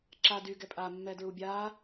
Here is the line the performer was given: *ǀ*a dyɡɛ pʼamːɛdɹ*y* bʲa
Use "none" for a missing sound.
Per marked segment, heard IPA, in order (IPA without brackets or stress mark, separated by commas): ǁ, u